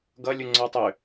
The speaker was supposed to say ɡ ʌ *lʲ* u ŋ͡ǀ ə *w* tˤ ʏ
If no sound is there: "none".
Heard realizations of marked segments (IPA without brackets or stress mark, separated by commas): lʲ, w